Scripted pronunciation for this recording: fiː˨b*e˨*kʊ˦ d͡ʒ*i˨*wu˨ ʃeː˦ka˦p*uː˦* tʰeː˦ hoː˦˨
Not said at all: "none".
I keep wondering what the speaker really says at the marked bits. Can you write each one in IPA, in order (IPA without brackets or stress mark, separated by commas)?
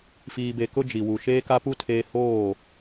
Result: e˨, i˨, u˦